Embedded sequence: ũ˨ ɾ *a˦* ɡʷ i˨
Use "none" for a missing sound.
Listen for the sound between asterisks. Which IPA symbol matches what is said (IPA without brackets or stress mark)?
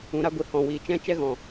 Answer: a˦